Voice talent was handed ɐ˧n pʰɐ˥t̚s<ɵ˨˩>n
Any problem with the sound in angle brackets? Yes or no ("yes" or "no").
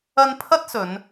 yes